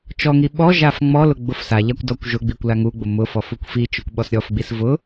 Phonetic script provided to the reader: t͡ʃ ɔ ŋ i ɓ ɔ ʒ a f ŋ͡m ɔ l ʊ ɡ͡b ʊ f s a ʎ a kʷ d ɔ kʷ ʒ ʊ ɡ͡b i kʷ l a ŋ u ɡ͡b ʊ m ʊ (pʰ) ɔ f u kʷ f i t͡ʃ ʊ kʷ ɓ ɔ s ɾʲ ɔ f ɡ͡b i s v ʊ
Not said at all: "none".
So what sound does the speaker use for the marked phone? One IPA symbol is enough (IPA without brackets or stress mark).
f